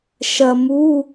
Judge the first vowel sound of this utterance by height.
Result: low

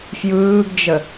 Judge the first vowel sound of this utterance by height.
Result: high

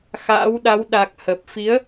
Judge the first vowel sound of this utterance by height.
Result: low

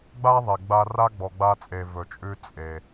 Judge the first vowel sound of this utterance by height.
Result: low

